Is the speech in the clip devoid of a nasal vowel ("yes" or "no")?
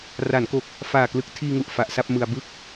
yes